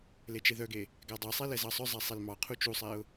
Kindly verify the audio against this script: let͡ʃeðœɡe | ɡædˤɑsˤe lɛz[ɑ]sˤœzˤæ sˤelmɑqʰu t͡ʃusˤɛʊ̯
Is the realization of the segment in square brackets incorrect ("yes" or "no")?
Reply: no